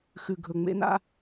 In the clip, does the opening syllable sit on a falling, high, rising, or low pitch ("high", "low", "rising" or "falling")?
low